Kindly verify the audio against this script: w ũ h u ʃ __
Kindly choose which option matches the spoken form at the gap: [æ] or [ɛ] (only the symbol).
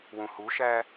æ